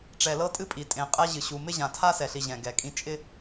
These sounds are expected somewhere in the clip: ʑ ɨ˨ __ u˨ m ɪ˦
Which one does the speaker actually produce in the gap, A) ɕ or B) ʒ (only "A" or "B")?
A